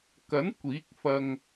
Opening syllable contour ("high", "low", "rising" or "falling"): rising